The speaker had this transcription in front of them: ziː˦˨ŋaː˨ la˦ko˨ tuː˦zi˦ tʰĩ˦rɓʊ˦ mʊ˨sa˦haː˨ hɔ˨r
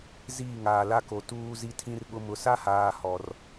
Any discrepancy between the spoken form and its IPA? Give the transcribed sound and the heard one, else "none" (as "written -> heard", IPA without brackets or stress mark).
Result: none